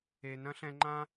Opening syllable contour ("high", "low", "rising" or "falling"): high